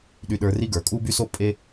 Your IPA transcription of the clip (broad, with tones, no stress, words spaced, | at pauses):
ɗy˧ɗə˞˧ri˥ ɡə˞˩kʼu˥by˥so˥ pʼe˥